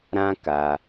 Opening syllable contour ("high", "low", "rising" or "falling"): high